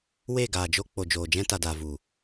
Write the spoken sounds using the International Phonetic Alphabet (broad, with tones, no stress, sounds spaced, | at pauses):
w e˦˨ ɡ aː˨ d͡ʒ o˧ k͡p o˨ d͡ʒ oː˨ d͡ʒ ɛ̃˧ t a˨ d aː˨ v u˨